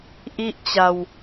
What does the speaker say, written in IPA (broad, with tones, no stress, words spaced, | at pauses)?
ʔi˥˩ʔt͡ɕa˧w